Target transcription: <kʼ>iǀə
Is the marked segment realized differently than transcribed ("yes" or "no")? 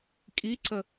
no